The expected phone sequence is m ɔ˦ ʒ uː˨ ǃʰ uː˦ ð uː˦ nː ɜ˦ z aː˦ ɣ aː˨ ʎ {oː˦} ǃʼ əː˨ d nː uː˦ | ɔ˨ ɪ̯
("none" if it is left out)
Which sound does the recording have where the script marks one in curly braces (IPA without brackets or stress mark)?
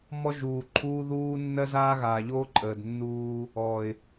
oː˦